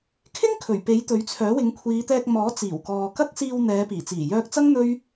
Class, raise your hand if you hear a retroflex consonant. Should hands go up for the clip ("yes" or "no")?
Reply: no